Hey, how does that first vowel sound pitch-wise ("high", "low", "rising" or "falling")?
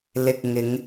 low